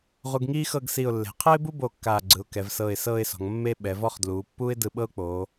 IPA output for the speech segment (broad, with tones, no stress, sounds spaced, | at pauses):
ʁ u˧ ɡ ŋ iː˥ x ɤ˥˧ ɡ s i˧˩ ʊ̯ lː e̤˩˧ qʰ ɤ˥ ɪ̯ b u˥ b o˧˩ kː aː˧˩ ɡ͡ǀ ɯ˩˧ ʊ̯ k ɛ˩˧ v s ɤː˧˩ ɪ̯ s ɤː˥˧ ɪ̯ s ɔ̤˩˧ ŋ mː e˥ ɓ ɛ˩˧ v ɔ˥˧ χ d l uː˩˧ pː uː˥ ɪ̯ d ɯ˧ ɓ ɤ˥ ʊ̯ k͡p oː˩˧